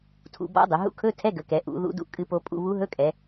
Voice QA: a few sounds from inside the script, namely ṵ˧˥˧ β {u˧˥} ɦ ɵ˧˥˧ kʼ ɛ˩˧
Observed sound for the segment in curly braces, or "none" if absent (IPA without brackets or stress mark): u˧˥